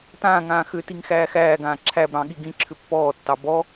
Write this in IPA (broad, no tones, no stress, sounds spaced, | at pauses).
t ãː ŋ ãː x ʏ t i ŋ x æː x æː ɡ ãː ǁʰ æ b ɾ ɑ̃ ɠ i ɡ ĩ ǁʰ ʏ pː ɔː tː ɑ b ɔ